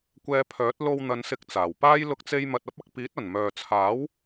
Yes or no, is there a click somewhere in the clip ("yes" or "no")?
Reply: no